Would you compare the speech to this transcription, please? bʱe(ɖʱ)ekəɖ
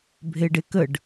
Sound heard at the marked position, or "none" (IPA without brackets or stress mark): ɖ